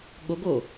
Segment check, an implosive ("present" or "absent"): present